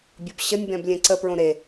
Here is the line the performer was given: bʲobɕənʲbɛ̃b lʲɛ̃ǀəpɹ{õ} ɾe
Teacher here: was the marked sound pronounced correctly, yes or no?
yes